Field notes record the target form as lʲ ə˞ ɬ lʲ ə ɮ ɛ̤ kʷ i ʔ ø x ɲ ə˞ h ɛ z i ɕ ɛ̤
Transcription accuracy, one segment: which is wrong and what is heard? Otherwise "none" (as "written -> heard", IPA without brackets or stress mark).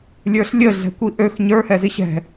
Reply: none